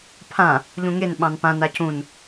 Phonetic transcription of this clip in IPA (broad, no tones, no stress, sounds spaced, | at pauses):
pʰ ã | ʎ ũ ŋ e n ɓ ɑ̃ n p ã n a c ũ n